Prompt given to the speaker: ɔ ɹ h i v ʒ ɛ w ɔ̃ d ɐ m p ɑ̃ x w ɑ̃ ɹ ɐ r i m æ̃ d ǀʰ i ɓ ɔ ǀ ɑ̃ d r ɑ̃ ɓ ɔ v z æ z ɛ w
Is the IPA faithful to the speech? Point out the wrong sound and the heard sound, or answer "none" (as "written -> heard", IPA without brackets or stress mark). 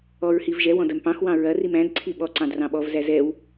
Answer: none